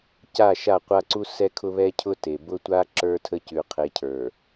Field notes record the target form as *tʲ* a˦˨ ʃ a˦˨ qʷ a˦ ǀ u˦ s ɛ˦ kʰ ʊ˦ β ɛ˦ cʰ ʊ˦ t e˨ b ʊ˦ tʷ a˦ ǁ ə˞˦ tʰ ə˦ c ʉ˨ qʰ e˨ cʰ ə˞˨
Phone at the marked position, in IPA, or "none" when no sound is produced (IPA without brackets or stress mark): c